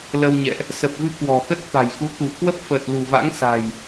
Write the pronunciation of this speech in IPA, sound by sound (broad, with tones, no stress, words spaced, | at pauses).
lə˧wɲɛ̰˧˨ʔ | sə˨˩p̚vɨ˧ kwɔ̤˨˩xə˦˥t̚ t̪a̤˨˩jxu˨˦ t̪ṳ˨˩kwə˦˥p̚fəː˨˩t̚ lṳ˨˩va̰˧˥ŋsa̤˨˩j